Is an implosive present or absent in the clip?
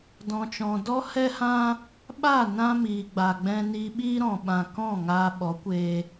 present